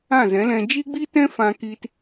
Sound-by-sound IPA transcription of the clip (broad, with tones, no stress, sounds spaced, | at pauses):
ã˦˨ z ɛ̃˨˦ l ɛ̃˧ d͡ʒ iː˦ ɡ͡b i˦ t ɛ̃˦ f ã˧ k iː˧ t